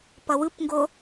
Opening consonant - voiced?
no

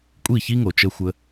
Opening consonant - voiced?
no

